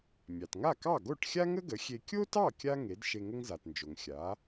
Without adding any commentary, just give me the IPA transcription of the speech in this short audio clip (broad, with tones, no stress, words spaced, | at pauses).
mʲɑ˩tŋa˥˩kɑ˥˩ ɡo˥˩ʈxʲa˥ŋə˥ɡə˩˥ xʲe˧ kʲo˥tɑ˥˩ kʲa˥ ŋe˩˥d ʃe˧ŋə˥ŋza˩tnd͡ʒo˩ŋ xʲa˩˥